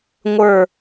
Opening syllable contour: falling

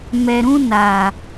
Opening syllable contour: low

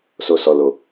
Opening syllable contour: low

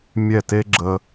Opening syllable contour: falling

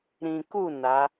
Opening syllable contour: low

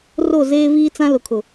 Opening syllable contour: falling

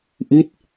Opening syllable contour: falling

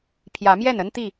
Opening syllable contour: rising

